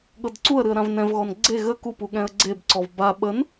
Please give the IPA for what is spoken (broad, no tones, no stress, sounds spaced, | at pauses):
ɠ ɤ d ǀ u ə̯ ɾ ɨ ə̯ ɾ ã v n ɛ̃ v ɣ ɔ n ɡ͡ǀ e ɣ ə k u p u ɠ ɛ̃ ə̯ ɡ͡ǀ e b ǀ ɔ v b a ɓ ə n